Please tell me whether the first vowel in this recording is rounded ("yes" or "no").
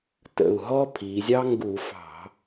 no